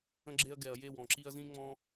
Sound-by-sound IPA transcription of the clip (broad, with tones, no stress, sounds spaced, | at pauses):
ə̃˦ ɡ͡ǁ e˦ ɐ̯ ɡ ɛ˨ ɐ̯ j e˦˨ w ɔ̃˨ ǁ i˦ ɐ̯ z ĩ˦ ŋ͡m ɔ̃˦